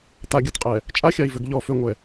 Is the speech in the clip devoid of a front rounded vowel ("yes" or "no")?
no